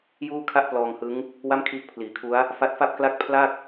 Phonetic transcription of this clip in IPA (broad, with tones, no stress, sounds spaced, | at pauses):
j uː˥˩ kʰ a˥˩ ʔ p l ɔː˧ ŋ h ɯ˦˥ ŋ | w a˥˩ m kʰ iː˦˥ k̚ pʰ l iː˩˦ kʰ u˦˥ a̯ | f a˦˥ t̚ f a˥˩ p̚ k l a˥˩ k̚ pʰ l a˥˩ k̚